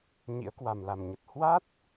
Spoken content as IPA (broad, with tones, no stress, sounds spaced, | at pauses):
ɲ ḭ˧˥ ə̯ k w a˨˩ m l a˨˩ m ɲ ə˨˩ t̚ h w a˦˥ t̚